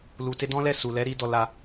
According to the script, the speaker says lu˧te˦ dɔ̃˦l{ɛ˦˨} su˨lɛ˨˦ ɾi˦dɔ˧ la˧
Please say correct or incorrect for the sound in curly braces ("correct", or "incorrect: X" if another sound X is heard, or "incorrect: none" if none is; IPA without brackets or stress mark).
correct